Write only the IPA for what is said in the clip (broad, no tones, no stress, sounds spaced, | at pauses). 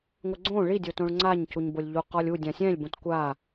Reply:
ŋʷ ɪ ɡ͡ǀ õ ɭ i dʲ o t õ ɭ ŋ͡ǀ a ɲ c u ɲ b o lʲ ʎ u q ɔ lʲ u dʲ ã sʲ ɛ̃ lʲ b õ t kʷ a